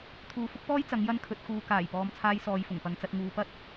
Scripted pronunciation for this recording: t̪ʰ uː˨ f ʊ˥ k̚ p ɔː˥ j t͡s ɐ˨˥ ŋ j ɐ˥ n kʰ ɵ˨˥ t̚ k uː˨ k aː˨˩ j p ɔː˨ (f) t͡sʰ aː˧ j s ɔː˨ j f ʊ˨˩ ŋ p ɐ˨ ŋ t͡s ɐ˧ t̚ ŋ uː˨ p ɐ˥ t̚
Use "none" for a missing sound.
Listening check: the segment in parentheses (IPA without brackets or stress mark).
m